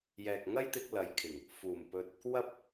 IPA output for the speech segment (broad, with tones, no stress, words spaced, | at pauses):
jɛː˨k̚ŋɐ˥jt̪ɪ˧k̚ lɐ˨˧jkʰɪ˨˩ŋ | fuː˨˩mpɵ˧t̚ | wɐ˥p̚